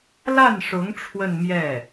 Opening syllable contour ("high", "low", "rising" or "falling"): falling